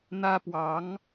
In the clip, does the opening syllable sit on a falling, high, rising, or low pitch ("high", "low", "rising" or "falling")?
high